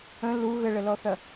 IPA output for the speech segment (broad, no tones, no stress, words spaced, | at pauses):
ə̃ lu ɣəɭəlɔθɐ